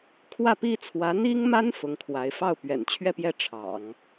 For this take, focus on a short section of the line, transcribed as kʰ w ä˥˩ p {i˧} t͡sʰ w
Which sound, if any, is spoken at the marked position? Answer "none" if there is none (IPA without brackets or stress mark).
i˥